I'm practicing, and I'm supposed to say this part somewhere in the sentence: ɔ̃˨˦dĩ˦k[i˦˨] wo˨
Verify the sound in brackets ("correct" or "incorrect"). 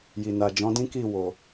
correct